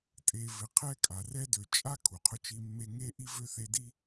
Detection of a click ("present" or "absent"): absent